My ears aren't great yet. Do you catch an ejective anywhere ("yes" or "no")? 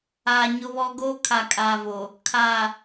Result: yes